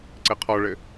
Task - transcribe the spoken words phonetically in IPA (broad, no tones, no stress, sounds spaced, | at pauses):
ǀ ɘ qʰ ɔ ɭ ɘ